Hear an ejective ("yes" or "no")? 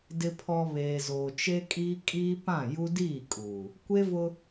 yes